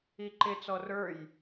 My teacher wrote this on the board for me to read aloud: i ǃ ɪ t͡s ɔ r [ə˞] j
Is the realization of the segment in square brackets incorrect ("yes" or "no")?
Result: no